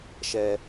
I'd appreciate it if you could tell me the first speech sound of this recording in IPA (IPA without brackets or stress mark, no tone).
ʃ